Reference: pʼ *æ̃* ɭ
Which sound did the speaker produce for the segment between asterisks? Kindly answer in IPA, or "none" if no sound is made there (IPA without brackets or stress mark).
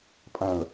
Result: æ̃